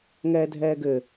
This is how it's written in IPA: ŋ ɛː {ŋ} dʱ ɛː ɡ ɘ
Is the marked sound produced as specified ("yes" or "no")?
no